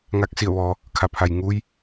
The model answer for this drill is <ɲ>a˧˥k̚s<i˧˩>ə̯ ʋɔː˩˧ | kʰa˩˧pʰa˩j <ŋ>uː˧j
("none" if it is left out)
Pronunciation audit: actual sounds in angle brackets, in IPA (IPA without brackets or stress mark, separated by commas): ŋ, i˧˩, ŋ